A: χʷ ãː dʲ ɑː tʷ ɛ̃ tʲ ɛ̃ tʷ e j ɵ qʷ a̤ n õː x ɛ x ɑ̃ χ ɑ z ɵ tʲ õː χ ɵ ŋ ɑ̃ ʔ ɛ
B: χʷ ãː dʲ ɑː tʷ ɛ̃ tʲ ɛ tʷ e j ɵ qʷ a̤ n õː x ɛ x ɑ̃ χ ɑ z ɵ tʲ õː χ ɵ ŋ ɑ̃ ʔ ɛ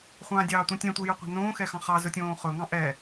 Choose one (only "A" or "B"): A